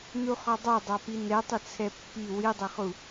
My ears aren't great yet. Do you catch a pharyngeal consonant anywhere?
no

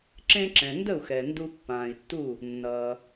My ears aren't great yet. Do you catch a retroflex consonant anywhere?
no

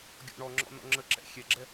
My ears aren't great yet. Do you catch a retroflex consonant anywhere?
yes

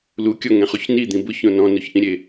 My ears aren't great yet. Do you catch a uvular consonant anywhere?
yes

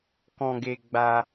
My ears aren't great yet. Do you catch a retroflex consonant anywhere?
no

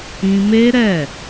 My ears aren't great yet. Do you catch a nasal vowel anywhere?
yes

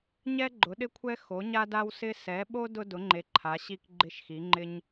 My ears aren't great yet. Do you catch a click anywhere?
yes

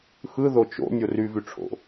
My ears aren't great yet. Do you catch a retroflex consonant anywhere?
yes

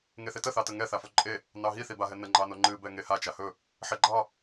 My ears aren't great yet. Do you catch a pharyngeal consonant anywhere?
yes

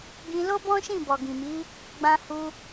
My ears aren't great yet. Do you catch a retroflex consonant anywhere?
no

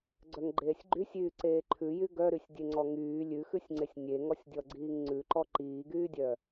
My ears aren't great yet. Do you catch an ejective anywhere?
no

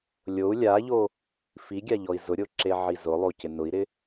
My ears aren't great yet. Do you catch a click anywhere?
yes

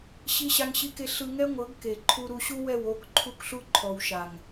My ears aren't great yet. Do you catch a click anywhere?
yes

